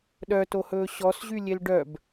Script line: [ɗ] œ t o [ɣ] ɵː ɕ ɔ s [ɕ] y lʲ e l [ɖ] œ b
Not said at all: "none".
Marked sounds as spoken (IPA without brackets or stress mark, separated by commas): ɗ, h, ʑ, ɖ